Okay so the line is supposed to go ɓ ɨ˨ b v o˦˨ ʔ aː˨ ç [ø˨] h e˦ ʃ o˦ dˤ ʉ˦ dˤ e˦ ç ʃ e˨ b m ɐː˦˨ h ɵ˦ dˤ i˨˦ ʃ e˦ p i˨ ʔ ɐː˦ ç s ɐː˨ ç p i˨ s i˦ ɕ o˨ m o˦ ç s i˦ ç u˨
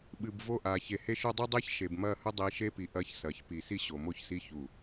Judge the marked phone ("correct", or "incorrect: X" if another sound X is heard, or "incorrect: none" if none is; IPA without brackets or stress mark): incorrect: e˨